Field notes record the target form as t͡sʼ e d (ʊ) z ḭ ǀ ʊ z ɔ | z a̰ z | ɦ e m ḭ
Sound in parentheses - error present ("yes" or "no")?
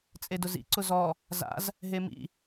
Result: no